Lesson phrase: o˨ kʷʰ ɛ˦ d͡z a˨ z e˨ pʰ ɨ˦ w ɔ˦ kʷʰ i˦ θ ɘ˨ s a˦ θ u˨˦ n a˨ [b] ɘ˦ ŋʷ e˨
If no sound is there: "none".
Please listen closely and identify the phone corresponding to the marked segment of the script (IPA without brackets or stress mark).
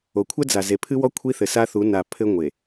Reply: pʰ